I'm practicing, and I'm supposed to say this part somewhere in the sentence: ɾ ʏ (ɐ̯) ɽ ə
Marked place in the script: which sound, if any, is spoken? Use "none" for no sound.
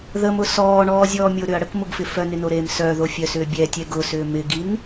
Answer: ɐ̯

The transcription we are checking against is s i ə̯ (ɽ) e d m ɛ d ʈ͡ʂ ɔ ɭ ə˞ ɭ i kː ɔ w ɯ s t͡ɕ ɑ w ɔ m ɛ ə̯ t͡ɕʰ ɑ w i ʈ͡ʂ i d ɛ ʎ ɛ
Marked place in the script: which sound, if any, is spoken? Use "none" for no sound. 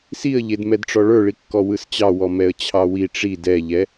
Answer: ʎ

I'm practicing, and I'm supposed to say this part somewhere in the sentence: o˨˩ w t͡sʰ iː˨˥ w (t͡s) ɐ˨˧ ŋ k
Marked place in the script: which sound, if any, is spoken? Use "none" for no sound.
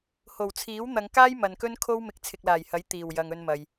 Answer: n̪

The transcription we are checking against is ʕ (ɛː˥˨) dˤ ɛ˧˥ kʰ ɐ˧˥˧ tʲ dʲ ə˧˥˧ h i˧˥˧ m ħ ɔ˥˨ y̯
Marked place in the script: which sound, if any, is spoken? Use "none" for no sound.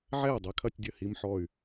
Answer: ɛː˥˨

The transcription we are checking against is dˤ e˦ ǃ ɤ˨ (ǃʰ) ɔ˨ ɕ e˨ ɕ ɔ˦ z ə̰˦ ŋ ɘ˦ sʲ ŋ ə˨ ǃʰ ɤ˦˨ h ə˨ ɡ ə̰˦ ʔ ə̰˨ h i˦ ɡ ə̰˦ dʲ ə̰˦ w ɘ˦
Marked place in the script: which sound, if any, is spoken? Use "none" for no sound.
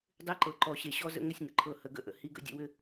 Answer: ǃ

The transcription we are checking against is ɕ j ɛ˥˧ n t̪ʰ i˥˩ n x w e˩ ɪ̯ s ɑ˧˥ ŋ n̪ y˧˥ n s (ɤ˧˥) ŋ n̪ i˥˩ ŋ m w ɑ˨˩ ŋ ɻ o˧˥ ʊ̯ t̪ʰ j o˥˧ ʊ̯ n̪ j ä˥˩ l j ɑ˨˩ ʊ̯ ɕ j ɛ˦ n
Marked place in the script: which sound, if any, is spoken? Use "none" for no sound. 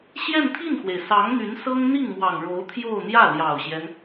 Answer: ɤ˥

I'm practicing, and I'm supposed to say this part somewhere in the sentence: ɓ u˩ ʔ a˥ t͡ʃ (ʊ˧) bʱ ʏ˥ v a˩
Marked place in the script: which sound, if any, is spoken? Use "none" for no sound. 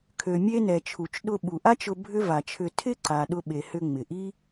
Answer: ʊ˧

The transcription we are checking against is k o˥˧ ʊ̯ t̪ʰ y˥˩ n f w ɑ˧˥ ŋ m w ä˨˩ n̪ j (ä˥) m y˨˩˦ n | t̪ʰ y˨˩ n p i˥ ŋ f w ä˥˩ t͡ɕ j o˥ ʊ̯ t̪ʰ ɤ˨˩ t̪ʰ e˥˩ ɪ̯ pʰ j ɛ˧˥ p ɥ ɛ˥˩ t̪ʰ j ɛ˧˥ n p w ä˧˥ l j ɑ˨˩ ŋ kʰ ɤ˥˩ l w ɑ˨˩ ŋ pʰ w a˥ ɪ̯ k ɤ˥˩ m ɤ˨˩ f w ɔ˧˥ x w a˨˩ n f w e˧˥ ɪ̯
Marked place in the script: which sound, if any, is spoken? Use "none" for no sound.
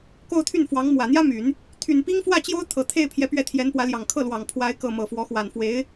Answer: ä˥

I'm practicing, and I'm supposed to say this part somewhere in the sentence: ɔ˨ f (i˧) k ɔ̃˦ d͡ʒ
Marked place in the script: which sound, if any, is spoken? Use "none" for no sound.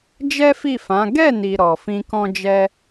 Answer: ĩ˧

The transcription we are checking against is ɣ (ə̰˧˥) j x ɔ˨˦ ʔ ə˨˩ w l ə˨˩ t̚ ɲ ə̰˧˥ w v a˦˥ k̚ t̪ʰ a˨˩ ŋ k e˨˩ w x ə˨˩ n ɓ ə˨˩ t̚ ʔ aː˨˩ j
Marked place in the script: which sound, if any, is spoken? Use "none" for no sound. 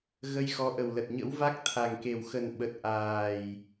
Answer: ə˧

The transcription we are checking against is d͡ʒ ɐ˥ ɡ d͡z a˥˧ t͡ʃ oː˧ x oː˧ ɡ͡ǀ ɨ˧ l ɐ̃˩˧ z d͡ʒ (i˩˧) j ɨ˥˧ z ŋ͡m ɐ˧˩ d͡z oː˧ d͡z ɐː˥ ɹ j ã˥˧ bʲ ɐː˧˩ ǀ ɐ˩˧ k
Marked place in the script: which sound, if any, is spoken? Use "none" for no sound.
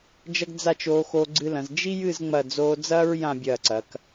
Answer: i˥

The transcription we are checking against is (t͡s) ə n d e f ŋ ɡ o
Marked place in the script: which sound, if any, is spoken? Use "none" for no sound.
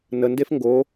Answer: n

